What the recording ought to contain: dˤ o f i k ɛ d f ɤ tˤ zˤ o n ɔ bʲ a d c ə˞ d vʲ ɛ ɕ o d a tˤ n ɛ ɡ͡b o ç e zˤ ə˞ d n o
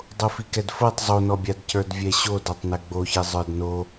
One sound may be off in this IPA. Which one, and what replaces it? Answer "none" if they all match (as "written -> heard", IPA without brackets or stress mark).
none